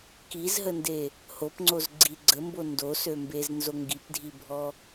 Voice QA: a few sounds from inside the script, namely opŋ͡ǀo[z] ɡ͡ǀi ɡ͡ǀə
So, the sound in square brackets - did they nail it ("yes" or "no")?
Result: yes